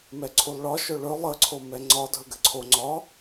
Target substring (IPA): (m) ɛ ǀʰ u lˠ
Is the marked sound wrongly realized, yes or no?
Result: no